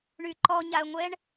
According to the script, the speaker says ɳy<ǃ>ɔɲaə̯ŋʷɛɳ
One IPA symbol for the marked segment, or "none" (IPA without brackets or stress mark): ǃ